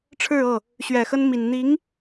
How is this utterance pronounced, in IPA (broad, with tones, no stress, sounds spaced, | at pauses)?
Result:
ʈ͡ʂʰ ɻ̩˥˧ ɤ˥˩ | ɕ ɥ ɛ˨˩ x ə˥ n m i˨˩ n n̪ i˧˥ ŋ